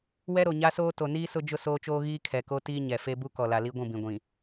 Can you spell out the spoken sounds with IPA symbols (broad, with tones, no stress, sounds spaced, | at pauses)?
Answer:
w ɛ˦ ɾ o˨ ɲ a˦ s oː˦ t o˨ n iː˦ s ʊ˦ d͡ʒ ʊ˦ s oː˦ t͡ʃ oː˦ ɣ iː˦ kʰ ɛ˨ k o˦ t iː˦ ɲ ɛ˨ f e˦ b u˦ k ɔ˨ l a˨ l i˦ ɡʷ ũ˦˨ b ĩ˨ ɡʷ ĩ˨